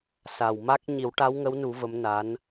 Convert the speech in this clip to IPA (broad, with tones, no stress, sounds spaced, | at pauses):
s a˨˩ w m a˦˥ k̚ ɲ i˨˩˦ w ʈ a˧˥ w ŋ ə˧˥ w n u˨˩˦ v ə˧˥ m n a˧˥ n